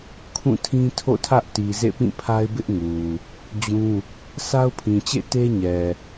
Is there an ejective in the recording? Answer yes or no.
no